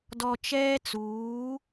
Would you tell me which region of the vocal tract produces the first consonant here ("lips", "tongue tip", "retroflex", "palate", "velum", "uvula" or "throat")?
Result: tongue tip